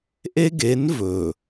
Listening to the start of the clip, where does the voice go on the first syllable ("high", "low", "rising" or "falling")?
high